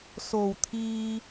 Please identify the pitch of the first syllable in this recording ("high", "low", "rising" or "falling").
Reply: low